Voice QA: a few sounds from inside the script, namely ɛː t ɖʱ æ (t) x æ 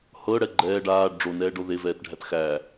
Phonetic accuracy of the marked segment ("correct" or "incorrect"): correct